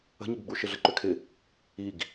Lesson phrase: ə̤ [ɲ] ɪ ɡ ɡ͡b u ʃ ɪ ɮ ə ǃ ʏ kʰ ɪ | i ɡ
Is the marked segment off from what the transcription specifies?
no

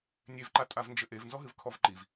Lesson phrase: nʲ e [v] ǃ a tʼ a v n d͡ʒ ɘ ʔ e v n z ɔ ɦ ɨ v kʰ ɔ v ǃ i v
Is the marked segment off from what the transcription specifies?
no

